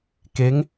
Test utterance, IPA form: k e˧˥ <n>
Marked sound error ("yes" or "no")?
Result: yes